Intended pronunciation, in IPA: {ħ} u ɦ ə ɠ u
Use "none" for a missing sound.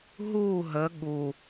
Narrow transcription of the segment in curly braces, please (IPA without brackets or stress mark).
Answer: ɦ